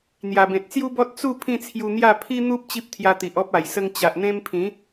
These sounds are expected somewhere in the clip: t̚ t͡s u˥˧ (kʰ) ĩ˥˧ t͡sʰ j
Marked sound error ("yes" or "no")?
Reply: yes